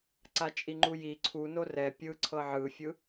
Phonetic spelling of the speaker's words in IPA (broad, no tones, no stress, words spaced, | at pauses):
ǀat͡ʃʼiŋ͡ǃuji ǀʰuno rɛ pʲɯǀʰɤ ʕɯfʲɯ